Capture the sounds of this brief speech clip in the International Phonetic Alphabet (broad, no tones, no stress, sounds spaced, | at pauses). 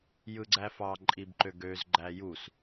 j ɯ ɡ͡ǀ æ f ɑ ǃʼ i b ǃ ø ɡ ø z ɡ͡ǃ æ j u s